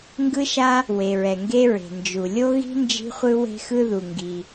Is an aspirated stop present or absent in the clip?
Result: absent